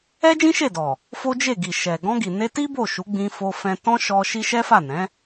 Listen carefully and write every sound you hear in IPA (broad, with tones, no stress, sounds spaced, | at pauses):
ɛ˦ d͡ʒ ĩ˦ ʃ e˦˨ d ɔ˨ | f o˦ d͡ʒ e˦˨ ɡ i˨ ʃ ɛ˨ ɡ ɔ̃˧ ɡ i˨ n e˧ t i˦ b o˦˨ ʃ u˨˦ ɡ͡b ĩ˧ f o˧ f ɛ̃˧ t ɔ̃˦ ʃ ɔ˧ ʃ i˦ ʃ ɛ˦ f a˦˨ n ɛ̃˨˦